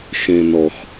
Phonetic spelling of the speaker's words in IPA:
x ẽ˩ n ɔ˩ x

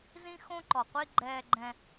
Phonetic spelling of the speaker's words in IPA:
z ĩ˦ x õ˦ ǃ ɔ˨ qʷ i˦ ɡ͡ǃ ɛː˦ ɡ͡ǃ ɛ̃˦

